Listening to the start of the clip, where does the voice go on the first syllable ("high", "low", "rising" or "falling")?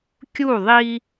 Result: falling